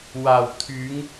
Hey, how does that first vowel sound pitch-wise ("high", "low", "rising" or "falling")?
low